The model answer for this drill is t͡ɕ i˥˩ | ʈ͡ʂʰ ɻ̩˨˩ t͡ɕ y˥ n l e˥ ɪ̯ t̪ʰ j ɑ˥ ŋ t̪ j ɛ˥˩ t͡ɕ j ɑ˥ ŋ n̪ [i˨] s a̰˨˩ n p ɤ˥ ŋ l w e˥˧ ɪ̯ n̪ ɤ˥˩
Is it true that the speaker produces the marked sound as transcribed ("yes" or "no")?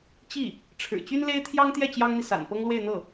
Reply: yes